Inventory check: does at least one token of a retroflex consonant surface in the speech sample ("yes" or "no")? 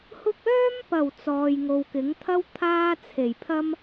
no